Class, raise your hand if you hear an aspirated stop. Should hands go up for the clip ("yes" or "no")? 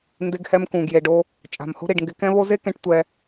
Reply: no